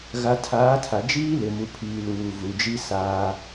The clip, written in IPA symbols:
ɣ a˨ tʰ aː˨˦ tʰ a˨ d͡ʒ iː˦ l ɪ˨ m u˨ pʰ iː˨ l uː˨ v u˨ d͡ʒ i˦ s aː˦

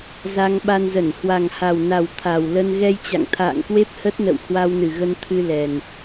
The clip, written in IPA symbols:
z a˧ ŋ ɓ a˧ n z ə˧˩ n h w a˨˩ ŋ h a˨˩ w n a˨˩ w t̪ʰ a˨˩ w l ə˧ n ɣ ɛ˧ j t͡ɕ a̰˧˨ ŋ t̪ʰ a̰ː˧˨ ŋ k w e˦˥ p̚ h ə˦˥ t̚ n ə̰˧˨ w h w a˧ w n ɨ˨˩ ɣ ə˧ n t̪ʰ ɨ˧ l ɛ˨˩ n

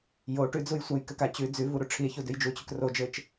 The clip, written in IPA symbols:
j o ʈ ʉ d͡z u j sʷ a j k ɘ k a t͡ɕ ʉ d͡z ʉ v u ɾ u ʈ͡ʂʰ i e̯ ç u d ʉ j d͡ʒ u t͡ɕ ʉ k r o d͡ʒ ɘ t͡ʃ

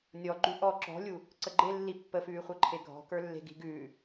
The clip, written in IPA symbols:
nʲ ɔ ɡ͡ǃ ʉ ʔ ɔ ǁ ɔ̤ lʲ u | ǀ ə ɡ͡ǃ e lː i pː ə f ʉː χʷ ə˞ ǃʰ e ɡʱ ɔ̤ k ə˞ lː e̤ ɡ i̤ ɡ ʉː

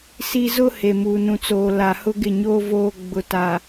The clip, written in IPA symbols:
s i˦ z ʊ˦ h e˨ m uː˨ n ũ˨ t͡s oː˨ l a˨ h ʊ˦ ɡ ɪ˦˨ ɲ oː˦ v oː˦ ɡ͡b ʊ˨ t a˨

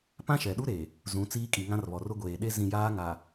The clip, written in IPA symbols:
p ã˦ ʃ ɛ˨ ɗ u˦ ɾ e˨ | z ũ˨˦ t͡s iː˦ kʼ i˨ ŋ ã˦ r β ɔ˨ r ʊ˦ ɡʷ eː˨ ɗ e˦ z ĩ˨ j aː˦ ŋ a˨

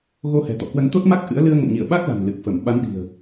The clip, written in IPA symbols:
ɣ o˧ h ɛ̤˨˩ t̪ ɔ̰˧˨ k w ə˧ n t̪ o˦˥ t̚ m a˦˥ k̚ ʔ ɨ̰˧˥ ə̯ l ɨ˧ ə̯ ŋ ə̰˧˨ m ɲ ḭ˧˨ ə̯ ɓ a˦˥ k̚ l a̤˨˩ n l ɨ˨˩ k̚ f ə˧˩ m ɓ a˨˦ n ɗ i̤˨˩ ə̯

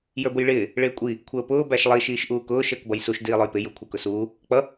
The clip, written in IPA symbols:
j ə˞ b ʊ j ɭ ɪː | ɭ ɪː kʷʼ i | kʷʰ əː p ʊː b æ ʃ lˠ i ʃ iː ʃ ʔ uː k ʊː ʃ əː k b ʌ j s u ʃ d iː lˠ ʊ j p ɪ j ʊ kʷʰ əː k ʊ s uː | k͡p ʌ

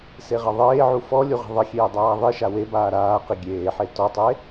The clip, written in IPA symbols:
s e ʁ ɐ ðˤ eː ʕ u f ɔ lʲ u ʁ e̤ ðˤ ɘ xʲ eː dˤ aː ðˤ i ʃ a w e b aː ɾ aː q i ɡʲ eː ħ e t ɔ tˤ e

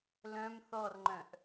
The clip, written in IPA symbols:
l œ̃ m θ ɔ r ŋ͡ǃ œ̃ ʔ

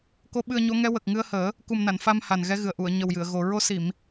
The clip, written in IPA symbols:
k o˧˥ ɓ ɨ˧ ə̯ ɲ o˧˥ ŋ ɛ˧˥ w ə˨˩ k̚ ŋ ɨ˧ ə̯ h əː˨˩˦ | k u˨˩ m n a˨˩˨ n f a˧ m h a˨˩ n ɣ ɛ˧˥ ɣ ɨ˨˩ ə̯ ʔ u˨˩˨ ə̯ ɲ ə˨˩ w j ɨ˨˩˨ ə̯ ɣ o˨˩ ɹ o˧ s i˨˩˨ m

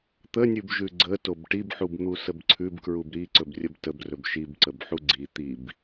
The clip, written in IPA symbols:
t̪ ə nʲ ʉ b ʒ ʉ ɡ͡ǀ ə t o b ʈ i b ħ u b n̪ u s ə b ǀʰ ʉ b k ɹ u b ɾ i ǀ ɵ b rʲ ə b t ə b r ɵ b ʃ i b ǀ ə b ħ u ɡ͡ǀ i t̪ i b

